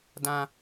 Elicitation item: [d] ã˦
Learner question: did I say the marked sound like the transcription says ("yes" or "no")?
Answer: yes